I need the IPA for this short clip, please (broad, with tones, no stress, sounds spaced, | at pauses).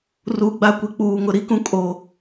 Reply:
r u˨ ɡ͡b a˦ kʷ i˨ k͡p uː˨ ŋ ʊ˨ ɾ i˦ k ũ˦ kʼ o˦